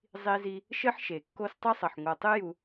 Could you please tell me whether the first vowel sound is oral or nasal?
oral